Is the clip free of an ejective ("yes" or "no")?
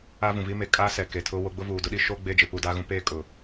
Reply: no